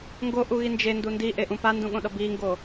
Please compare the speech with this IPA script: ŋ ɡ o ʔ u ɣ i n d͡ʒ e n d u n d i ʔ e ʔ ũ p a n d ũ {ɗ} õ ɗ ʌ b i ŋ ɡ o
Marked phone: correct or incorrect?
incorrect